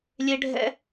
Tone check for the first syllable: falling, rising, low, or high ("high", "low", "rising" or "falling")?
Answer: high